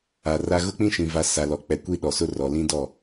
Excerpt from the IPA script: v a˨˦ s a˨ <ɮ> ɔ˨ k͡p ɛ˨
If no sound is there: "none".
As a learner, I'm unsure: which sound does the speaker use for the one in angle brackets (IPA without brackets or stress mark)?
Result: l